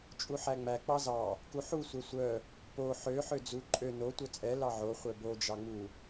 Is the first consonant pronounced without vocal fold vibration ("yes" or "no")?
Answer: yes